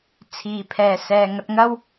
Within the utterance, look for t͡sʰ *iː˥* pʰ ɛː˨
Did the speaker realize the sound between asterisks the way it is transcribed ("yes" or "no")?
no